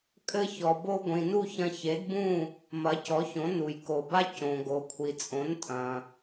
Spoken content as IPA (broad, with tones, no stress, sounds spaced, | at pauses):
kʼ ɘ˧ ç ɔ˩ b o˧ ɡʷ ĩ˩ n u˥˩ ç ɐ̃˧ ç e˩˥ d b ũ˥˩ | m ɐ˩˥ c ɔ˩˥ ç õ˩˥ n u˩ j k o˩ b a˥ c õ˩ ɡ o˩ kʷʰ i˩ t͡sʼ õ˩˥ n tʼ ɐ̃˩